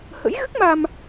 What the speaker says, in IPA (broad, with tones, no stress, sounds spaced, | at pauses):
h ə̰˧˥ j ɣ ɨ˦˥ k̚ m a˧ m